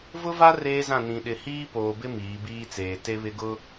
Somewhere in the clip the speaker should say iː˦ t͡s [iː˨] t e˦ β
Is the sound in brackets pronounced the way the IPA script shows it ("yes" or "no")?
no